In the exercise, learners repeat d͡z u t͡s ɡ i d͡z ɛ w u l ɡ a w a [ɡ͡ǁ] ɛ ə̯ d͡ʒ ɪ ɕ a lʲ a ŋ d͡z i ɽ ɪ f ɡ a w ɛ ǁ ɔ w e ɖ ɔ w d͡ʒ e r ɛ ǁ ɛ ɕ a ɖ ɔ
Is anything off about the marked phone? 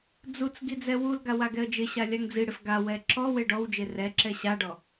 yes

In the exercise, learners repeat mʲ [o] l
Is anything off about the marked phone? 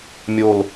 no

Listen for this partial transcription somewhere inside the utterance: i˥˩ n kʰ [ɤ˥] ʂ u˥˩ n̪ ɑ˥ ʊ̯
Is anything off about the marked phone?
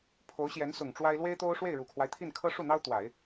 no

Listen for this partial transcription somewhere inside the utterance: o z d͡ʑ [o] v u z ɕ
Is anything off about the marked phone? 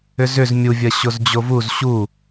no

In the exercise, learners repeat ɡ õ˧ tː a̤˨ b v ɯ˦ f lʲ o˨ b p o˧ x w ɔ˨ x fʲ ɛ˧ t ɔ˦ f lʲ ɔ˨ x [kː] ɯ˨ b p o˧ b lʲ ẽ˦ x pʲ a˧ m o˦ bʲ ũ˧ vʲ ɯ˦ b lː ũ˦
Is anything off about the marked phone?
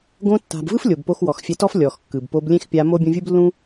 no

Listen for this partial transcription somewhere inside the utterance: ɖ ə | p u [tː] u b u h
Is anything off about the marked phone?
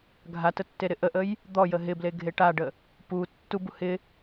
no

